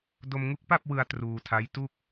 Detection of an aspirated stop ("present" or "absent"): present